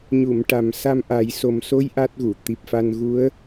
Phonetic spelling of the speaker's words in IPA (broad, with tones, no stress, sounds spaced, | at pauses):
ɲ u˨˩˨ m ʈ a˨˩ m s a˧ m ʔ a˨˩˦ j s o˨˩ m s o˧˥ j ʔ a˦˥ t̚ ɣ u˨˩˨ t̪ i˨˩ p̚ f a˧ n ɣ u˧˥ ə̯